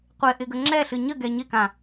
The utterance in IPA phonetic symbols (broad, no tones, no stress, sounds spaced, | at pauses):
qʷ ɪ ʔ ɪ ɡ ə ŋ͡ǁ ɛ ɬ ɨ ɲ ə ɡ ɛ ɲ ɪ k ã